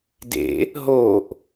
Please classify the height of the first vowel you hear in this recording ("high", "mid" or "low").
mid